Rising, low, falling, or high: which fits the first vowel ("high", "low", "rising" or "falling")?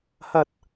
high